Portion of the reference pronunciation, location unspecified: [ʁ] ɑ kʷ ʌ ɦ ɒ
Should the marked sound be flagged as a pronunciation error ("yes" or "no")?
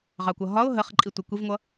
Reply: no